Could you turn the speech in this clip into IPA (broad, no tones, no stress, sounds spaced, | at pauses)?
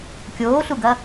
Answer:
kʲ oː ɬ u ɡ ɐ